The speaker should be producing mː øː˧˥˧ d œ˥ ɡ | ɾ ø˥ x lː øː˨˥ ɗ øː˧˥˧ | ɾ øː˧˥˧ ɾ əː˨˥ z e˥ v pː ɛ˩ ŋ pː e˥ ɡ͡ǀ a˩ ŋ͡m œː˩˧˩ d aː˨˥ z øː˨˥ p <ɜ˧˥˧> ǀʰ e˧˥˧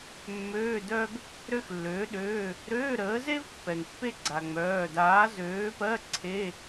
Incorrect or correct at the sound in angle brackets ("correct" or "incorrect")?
correct